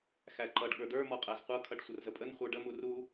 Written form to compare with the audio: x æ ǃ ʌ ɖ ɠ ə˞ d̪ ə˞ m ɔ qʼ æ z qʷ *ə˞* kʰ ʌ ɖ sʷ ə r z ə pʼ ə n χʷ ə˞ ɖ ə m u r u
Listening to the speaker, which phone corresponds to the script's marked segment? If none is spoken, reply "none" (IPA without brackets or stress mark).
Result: ʌ